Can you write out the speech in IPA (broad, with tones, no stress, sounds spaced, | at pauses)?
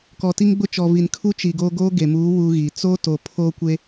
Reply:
k ɔ˨ t i˦ ŋ ɡ͡b ʊ˦ t͡ʃ ɔ˨ v i˨ n kʰ u˦ t͡ʃ i˨ ɡ oː˦ ɡ oː˦ ɡ e˨ m uː˨˦ w u˦ ɣ i˨ t͡s o˦ t o˨ pʰ oː˦ kʷ e˦